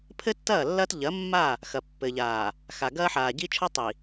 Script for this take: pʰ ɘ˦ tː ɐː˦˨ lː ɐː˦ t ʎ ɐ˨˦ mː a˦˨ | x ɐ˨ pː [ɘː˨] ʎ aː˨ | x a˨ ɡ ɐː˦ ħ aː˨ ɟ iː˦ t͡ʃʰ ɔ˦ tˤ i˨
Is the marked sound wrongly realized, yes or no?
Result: yes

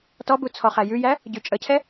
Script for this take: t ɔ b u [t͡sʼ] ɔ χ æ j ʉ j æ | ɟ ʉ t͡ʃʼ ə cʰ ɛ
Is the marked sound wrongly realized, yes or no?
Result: yes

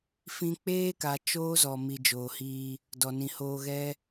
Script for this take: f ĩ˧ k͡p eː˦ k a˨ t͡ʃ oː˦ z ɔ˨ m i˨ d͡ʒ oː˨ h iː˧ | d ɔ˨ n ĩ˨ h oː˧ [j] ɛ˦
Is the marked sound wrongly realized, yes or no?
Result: yes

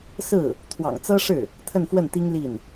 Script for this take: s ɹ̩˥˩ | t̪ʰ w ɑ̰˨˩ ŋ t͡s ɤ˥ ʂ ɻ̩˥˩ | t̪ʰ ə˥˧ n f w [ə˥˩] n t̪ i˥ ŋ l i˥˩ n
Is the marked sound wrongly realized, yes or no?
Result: no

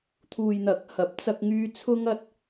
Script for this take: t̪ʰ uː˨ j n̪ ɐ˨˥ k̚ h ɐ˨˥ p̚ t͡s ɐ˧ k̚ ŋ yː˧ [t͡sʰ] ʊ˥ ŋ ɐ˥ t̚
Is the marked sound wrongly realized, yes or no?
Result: no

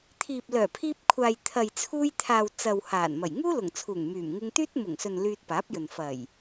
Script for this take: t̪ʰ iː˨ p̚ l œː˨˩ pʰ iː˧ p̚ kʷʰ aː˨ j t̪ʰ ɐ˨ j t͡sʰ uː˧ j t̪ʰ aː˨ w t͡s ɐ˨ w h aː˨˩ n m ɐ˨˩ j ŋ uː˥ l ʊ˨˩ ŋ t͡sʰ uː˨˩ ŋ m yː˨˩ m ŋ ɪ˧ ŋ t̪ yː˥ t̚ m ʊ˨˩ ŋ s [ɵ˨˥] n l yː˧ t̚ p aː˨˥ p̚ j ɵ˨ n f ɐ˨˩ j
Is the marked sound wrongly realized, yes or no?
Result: yes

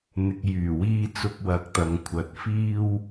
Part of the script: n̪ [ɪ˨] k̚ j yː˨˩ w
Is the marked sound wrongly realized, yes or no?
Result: no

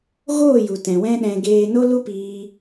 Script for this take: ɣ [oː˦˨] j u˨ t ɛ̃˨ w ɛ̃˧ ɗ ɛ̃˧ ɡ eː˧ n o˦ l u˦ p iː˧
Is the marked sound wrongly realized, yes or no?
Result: no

